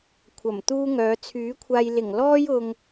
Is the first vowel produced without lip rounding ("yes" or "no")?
yes